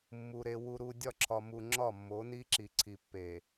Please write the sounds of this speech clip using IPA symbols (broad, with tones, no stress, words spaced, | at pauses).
mːu˨ ɾe˨ wu˨ɾu˨ dʲɒ˦˨ǁʰɒ˨mu˨ ŋ͡ǁɒ˦˨mːo˨˦ ni˦ǁi˨ǀʰi˨ pːe˨